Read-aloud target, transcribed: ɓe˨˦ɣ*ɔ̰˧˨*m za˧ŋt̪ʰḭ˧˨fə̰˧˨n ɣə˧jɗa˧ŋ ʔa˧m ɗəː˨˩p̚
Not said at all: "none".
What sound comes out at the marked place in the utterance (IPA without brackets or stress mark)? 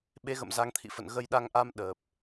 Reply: ə̰˧˨